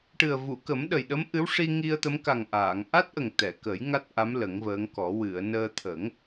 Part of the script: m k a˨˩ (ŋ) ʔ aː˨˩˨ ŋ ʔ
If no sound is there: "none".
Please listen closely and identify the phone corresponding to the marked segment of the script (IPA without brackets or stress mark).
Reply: ŋ